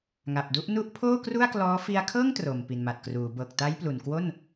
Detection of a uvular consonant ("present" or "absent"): absent